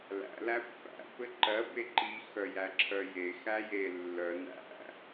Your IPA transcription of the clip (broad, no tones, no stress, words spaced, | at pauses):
læ̰ læpːæ̰ pɘǃɜ beǃi xœjæǁʰœje xæje lːœ næ̰